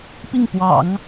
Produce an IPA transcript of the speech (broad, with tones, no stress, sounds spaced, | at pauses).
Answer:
p i˥˩ ŋ p w ɑ̰˨˩˦ ŋ